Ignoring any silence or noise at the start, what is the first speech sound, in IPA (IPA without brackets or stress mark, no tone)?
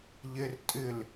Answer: ʎ